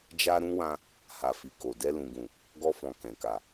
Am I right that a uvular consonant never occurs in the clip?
yes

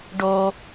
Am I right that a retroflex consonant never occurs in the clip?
no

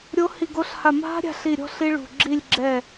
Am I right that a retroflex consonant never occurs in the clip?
no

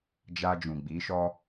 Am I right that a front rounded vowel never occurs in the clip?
yes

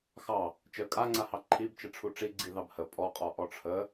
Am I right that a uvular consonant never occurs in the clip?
no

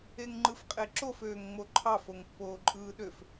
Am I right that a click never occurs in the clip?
no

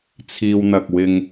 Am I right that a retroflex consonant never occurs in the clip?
yes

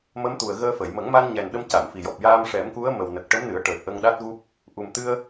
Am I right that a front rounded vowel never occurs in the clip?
yes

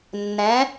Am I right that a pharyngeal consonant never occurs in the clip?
yes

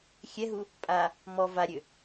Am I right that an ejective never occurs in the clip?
no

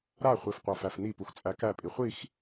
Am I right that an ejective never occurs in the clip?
no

